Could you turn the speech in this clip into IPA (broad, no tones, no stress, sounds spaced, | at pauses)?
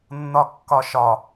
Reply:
nː ɒ kː ɒ ʃ ɒ